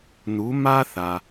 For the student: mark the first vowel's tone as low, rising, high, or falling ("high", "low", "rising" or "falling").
rising